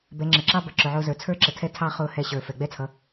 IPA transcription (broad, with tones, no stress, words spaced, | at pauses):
bɛ˨˦ ŋ͡ǁə˨ǁɑ˦ bʌ˨ǁʊ˨ʕʊː˧zə˞˨ t͡sʰə˞˦ǁə˨tʰɛ˦˨ tʰɑ˦χʊː˧ hɛ˧ɕə˞˨ fɛ˨ɡ͡bɛ˦t͡sʰʌ˨˦